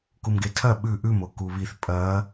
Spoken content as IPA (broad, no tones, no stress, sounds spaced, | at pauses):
k u m ɡ e tʰ ɐ ɓ ʉ ʔ ʉ m o k u β i θ pʼ ɐ